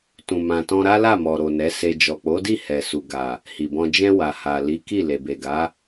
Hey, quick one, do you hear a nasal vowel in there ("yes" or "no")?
yes